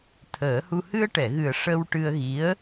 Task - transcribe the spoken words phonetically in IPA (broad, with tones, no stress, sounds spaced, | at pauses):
t̪ʰ əː˨˩˦ h u˧ h ɨ˧ ə̯ ʈ ɛ˨˩˨ ɣ ɨ˨˩ ə̯ ʂ ə˧ w ʈ ɨ˧ ə̯ ɣ i˧˥ ə̯